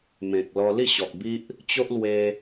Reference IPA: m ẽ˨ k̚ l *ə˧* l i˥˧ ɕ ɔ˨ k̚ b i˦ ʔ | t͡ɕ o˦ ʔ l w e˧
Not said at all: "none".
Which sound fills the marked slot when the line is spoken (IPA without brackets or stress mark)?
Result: ɔ˧